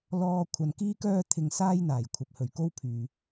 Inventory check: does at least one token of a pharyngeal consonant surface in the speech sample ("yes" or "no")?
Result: no